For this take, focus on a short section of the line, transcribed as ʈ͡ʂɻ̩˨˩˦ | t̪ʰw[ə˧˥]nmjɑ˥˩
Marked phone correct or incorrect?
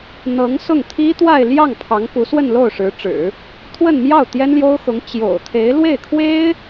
incorrect